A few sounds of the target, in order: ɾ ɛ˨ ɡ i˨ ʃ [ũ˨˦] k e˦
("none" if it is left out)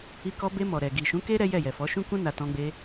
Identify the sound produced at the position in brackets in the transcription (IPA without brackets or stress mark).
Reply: ũ˨˦